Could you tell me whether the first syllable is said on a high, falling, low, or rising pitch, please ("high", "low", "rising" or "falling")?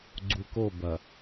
low